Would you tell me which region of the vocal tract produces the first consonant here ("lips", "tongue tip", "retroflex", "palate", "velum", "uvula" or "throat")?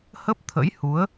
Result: throat